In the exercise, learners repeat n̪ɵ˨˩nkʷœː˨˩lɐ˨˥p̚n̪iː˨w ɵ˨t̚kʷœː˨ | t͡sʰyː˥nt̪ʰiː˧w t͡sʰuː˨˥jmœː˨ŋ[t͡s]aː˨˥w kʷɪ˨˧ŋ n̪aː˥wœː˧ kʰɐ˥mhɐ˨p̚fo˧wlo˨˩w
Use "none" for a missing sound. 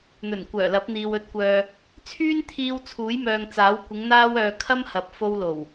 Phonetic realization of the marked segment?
t͡s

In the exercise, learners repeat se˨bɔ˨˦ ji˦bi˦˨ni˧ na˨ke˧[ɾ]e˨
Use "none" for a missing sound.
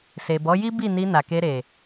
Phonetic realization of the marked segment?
ɾ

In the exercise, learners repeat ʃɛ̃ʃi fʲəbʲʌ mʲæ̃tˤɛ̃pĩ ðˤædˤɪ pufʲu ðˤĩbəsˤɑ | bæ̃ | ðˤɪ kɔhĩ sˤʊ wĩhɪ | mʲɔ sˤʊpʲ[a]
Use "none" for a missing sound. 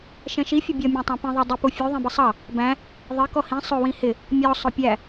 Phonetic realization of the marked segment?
æ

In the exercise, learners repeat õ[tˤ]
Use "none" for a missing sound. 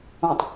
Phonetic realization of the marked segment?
tˤ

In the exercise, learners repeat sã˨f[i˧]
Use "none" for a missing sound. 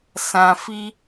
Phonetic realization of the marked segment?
i˧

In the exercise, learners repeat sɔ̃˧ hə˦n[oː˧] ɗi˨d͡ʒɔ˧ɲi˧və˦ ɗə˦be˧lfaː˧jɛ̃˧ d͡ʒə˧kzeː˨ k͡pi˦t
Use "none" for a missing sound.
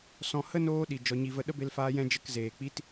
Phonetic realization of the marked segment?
oː˧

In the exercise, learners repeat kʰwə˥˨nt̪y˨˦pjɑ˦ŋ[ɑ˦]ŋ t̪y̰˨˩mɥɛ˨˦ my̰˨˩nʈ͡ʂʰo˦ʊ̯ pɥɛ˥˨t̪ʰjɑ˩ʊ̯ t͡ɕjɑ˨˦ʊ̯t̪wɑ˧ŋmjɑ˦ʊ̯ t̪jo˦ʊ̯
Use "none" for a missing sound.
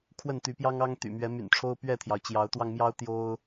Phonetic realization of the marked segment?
ɑ˦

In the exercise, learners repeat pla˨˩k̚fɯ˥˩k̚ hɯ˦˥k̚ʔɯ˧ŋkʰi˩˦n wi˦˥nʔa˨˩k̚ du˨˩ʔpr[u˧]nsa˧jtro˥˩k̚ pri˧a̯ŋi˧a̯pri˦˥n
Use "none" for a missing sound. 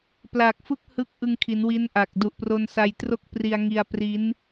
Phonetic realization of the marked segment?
o˧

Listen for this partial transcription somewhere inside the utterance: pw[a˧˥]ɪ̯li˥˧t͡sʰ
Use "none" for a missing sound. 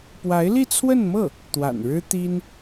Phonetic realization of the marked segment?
a˧˥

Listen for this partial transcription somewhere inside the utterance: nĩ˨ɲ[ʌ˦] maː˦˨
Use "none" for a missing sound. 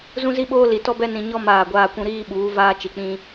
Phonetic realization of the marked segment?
ɔ˦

